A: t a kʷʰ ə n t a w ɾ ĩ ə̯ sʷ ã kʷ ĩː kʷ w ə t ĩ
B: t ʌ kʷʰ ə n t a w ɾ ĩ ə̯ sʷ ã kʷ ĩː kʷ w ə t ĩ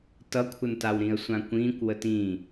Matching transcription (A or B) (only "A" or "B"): B